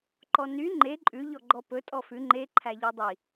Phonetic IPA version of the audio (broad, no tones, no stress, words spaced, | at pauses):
ǃɔny ŋ͡ǃe ǃʼʉ ʎɔɡ͡ǃɔpɵ tʼɔfʉ ŋ͡ǃe ǃʰæʎødˤi